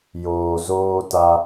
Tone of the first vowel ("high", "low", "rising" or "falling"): low